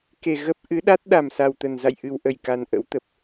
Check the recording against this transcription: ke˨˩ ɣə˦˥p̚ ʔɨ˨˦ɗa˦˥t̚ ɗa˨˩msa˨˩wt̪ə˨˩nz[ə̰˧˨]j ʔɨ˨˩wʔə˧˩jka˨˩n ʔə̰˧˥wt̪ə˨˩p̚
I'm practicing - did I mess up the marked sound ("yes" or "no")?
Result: yes